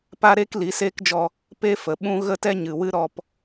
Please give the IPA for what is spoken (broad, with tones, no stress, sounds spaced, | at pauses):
p a˦ ɾ e˦ k l i˨˦ s eː˦ k d͡ʒ ɔ˧ | p e˦ f ə˨ ɓ ũ˦ ɣ ə˦ t ɛ˦ ɲ ɨ˨ w ɨ˦ ɾ ɔ˧ p